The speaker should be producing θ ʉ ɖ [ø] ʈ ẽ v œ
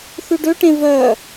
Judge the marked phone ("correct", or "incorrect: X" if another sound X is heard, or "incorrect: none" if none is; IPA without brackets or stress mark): correct